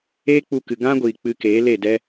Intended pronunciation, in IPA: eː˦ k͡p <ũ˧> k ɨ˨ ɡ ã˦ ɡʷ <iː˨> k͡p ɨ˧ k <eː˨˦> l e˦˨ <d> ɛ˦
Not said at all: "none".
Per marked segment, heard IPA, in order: u˧, iː˨, eː˨˦, d

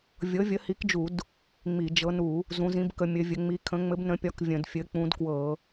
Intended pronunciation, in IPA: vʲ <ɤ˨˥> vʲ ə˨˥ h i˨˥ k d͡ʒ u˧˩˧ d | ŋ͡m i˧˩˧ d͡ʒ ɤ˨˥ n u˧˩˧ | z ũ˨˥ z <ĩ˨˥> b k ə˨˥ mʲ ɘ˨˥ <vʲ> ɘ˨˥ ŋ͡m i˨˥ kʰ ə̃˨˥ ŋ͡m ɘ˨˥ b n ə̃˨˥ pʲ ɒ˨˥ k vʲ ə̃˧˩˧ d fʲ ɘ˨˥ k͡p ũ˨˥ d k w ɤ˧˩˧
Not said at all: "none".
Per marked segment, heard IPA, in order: ɤ˨˥, ĩ˨˥, vʲ

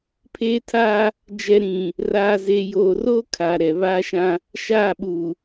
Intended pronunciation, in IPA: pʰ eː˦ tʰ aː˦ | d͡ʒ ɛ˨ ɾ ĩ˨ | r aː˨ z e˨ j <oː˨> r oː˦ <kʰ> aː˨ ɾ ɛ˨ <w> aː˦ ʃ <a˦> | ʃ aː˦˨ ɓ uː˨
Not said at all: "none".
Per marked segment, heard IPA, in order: oː˨, kʰ, β, ã˦

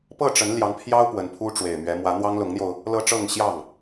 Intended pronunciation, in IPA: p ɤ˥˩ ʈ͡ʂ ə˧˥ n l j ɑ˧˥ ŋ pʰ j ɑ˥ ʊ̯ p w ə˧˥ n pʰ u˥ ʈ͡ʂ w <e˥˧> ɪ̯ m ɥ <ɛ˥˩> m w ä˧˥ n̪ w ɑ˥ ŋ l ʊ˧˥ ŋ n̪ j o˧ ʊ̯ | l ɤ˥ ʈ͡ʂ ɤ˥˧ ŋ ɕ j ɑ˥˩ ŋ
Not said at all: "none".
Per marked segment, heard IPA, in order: e˨˩, ɛ˧˥

